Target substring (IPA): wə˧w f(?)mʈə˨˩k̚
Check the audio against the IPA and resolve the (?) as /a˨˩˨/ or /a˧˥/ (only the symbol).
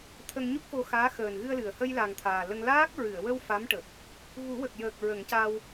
a˧˥